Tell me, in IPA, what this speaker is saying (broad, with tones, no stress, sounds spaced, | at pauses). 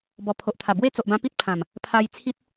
b ɔ˨˩ pʰ o˨ ʔ t̪ʰ a˨˩ b w e˥˧ t͡s o˨ ʔ b ã˧ p i˦ t̚ pʰ ã˨˩ m | pʰ a˧ j t͡sʰ i˦ t̚